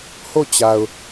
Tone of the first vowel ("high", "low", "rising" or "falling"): falling